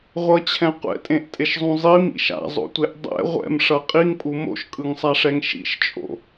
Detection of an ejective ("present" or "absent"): present